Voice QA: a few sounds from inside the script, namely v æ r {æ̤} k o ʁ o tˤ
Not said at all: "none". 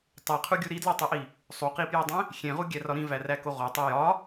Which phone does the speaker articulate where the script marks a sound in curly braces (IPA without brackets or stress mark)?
æ